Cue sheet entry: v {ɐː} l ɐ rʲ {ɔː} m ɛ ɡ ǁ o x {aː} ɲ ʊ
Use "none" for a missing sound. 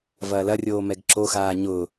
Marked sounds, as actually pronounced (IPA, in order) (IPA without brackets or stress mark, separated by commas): ɐː, oː, aː